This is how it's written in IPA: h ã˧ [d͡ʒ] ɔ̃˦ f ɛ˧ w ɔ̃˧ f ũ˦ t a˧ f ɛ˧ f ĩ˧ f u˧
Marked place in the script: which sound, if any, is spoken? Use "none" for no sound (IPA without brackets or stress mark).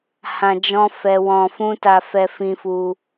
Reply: d͡ʒ